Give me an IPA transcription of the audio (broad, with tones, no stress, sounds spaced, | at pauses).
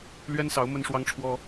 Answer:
l ɥ ɛ˦ n s ɑ˨˦ ʊ̯ m ə˦ n ʂ w ɑ˦ ŋ ʈ͡ʂʰ w ɔ˦